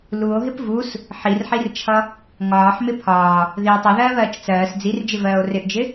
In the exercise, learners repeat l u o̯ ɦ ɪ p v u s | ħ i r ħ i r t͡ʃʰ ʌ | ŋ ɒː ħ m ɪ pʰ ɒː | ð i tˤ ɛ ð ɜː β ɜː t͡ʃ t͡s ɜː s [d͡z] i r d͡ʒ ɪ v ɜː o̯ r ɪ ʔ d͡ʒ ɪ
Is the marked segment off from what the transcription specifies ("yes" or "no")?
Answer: no